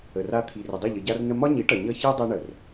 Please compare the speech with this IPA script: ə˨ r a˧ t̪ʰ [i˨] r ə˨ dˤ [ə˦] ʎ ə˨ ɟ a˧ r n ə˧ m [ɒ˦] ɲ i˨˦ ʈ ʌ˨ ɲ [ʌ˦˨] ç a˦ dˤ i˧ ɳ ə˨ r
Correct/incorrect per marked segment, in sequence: correct, incorrect, correct, correct

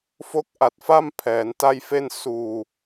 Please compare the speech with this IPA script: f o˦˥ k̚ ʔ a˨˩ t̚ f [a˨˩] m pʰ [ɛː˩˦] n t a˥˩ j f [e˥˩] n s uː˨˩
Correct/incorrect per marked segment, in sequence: incorrect, correct, correct

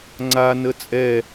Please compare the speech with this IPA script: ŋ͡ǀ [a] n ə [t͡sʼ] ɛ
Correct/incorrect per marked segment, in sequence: correct, correct

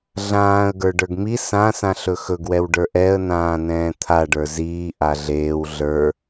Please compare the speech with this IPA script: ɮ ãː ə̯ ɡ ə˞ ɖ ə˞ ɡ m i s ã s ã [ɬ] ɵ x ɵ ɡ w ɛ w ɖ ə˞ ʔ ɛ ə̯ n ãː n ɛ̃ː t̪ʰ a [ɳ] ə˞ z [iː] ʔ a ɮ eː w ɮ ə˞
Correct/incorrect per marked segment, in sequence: correct, incorrect, correct

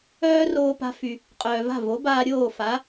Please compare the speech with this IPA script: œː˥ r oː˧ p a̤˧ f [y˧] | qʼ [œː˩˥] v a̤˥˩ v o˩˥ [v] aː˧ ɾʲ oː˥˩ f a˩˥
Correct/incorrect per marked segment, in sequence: incorrect, incorrect, incorrect

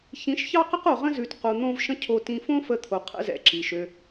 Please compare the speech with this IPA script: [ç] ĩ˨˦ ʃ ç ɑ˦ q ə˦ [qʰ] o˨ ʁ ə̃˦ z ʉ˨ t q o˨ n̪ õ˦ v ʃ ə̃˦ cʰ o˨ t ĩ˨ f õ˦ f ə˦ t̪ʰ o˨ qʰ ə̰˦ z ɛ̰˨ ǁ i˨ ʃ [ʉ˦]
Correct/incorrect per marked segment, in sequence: correct, incorrect, incorrect

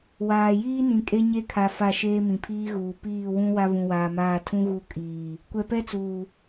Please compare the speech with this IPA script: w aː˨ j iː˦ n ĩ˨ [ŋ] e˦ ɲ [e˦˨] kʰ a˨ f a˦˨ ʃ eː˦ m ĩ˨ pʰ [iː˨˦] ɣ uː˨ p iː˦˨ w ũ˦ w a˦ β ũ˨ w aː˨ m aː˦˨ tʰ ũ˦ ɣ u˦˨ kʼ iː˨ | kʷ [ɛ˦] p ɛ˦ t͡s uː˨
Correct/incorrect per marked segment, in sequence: incorrect, incorrect, incorrect, incorrect

